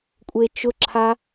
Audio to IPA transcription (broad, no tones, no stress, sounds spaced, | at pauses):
kʷʼ e t͡ʃ ʊ ǁʰ a